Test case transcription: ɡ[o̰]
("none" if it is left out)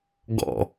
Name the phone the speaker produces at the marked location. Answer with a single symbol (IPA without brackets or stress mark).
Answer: ɔ̰